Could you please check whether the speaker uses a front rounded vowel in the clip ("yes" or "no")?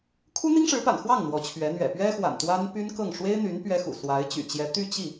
yes